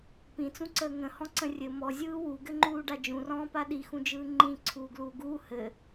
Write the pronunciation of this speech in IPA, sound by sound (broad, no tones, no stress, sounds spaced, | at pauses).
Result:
p ĩ t͡s ũ ǀ əː ŋ ə̃ h ɔ̃ ǀ ə̃ rʲ ɘ m ɔ zʲ ɯː w u ɡ ɘ ŋ͡ǃ uː ɖ a d͡ʒ ũ r ɔ̃ː p a ɗ i x ũ d͡ʒ ɯː ŋ͡ǃ ĩ ǀʰ uː ɡ l uː ɡ uː h ɘ